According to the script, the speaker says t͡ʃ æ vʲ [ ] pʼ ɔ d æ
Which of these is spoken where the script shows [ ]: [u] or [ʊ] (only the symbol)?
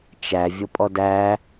ʊ